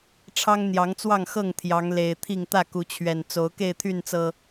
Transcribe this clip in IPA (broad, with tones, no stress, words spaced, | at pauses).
ʈ͡ʂʰɑ˦ŋn̪jɑ˨˦ŋt͡swɑ˥˨ŋxɤ˥˨ŋ t̪ʰjɑ˨˦ŋle˨˩ɪ̯t̪ʰi˥˨ŋ t̪ä˥˨ku˨˦t͡ɕʰɥɛ˨˩n t͡so˨˦ʊ̯ke˥˨ɪ̯t̪ʰy˥˨nt͡sɤ˨˩